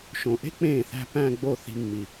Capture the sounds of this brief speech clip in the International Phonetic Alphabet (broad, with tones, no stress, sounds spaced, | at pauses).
ʃ õ˨˩ ʔ e̤˥ k͡p ẽː˥˩ θ æ̤˥˧ p æ̃˥˧ ɡ͡b o˥˩ θ i̤˧ mː i˨˩